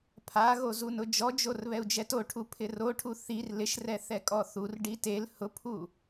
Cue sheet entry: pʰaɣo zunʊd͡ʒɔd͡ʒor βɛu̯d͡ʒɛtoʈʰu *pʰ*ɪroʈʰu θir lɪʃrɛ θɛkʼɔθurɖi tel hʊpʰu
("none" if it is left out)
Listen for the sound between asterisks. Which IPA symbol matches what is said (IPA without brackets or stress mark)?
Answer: pʰ